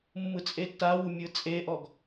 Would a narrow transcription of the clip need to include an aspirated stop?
no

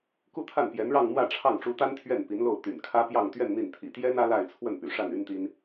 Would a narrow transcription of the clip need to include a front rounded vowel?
yes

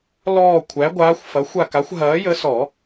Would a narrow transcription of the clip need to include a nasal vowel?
no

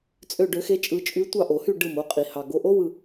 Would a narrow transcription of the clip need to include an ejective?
yes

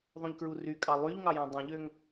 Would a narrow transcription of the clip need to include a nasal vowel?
yes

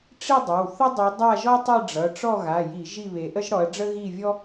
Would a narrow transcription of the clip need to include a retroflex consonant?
yes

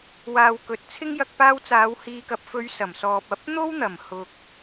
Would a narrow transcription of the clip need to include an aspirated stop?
yes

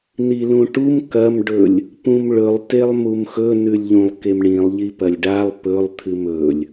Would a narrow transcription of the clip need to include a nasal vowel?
yes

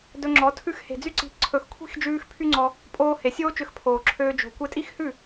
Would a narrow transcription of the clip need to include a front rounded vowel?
yes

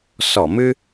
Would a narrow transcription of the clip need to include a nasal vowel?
no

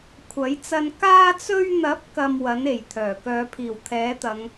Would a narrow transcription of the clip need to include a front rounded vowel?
yes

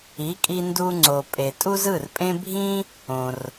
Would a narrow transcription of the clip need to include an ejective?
yes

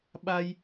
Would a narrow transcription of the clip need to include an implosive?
yes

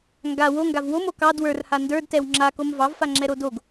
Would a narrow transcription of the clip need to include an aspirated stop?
no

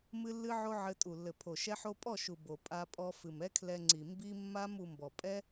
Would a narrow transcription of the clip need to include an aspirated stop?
yes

